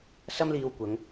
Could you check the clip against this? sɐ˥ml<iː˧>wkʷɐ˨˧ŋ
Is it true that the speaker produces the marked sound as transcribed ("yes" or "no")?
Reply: yes